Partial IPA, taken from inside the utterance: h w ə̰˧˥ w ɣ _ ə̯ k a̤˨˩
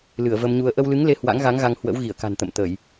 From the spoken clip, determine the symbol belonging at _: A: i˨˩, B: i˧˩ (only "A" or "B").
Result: B